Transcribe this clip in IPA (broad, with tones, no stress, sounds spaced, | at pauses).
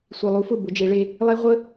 sʷ i˨ lˠ u˨˦ f ʊ˦˨ b ʊ˨˦ d͡ʒ e˨˦ ɭ e˦ | lˠ e˦ ʁʷ ə˦